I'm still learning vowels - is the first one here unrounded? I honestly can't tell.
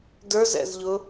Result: yes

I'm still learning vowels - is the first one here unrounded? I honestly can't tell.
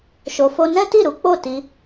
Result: no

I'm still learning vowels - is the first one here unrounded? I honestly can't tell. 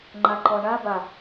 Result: yes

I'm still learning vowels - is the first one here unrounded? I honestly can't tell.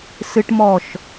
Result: yes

